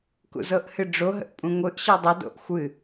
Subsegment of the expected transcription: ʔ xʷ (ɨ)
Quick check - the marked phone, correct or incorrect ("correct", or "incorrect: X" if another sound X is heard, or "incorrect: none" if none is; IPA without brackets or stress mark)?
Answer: correct